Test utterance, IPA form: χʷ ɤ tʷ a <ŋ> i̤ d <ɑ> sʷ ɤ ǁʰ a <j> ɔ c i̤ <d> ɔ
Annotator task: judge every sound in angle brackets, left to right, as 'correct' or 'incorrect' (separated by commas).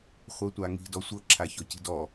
correct, incorrect, incorrect, correct